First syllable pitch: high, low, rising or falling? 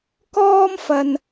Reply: high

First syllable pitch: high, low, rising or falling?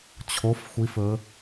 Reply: rising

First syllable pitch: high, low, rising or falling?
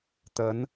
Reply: rising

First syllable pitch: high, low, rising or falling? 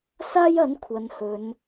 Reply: high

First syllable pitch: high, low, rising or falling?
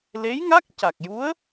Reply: rising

